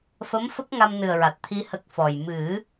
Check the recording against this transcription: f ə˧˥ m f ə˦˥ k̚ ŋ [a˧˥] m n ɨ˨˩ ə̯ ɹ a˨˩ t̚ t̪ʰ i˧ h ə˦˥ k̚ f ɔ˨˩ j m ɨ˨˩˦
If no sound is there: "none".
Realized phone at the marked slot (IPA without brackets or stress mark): a˧